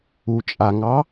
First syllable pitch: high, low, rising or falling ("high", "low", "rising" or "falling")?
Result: low